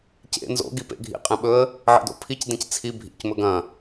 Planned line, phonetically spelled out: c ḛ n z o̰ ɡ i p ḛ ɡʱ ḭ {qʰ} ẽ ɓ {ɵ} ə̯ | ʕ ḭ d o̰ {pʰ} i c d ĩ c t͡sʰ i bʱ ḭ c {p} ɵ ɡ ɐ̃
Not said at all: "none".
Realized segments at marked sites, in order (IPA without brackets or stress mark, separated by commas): qʼ, ɵ, pʰ, m